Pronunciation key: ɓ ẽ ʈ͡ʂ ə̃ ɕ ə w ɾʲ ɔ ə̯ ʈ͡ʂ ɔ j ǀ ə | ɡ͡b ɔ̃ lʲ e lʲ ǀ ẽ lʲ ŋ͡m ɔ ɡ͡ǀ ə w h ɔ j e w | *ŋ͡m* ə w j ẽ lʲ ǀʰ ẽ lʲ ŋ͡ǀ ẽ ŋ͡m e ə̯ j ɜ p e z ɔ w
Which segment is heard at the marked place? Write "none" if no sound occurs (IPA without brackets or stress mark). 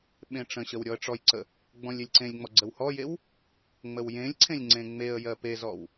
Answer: ŋ͡m